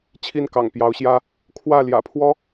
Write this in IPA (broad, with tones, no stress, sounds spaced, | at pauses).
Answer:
t͡ɕʰ i˥˩ n k ɑ̰˨˩ ŋ p j ɑ˧˥ ʊ̯ ɕ j ä˥ | kʰ w ä˥˩ l j ä̰˨˩ pʰ w ɔ˥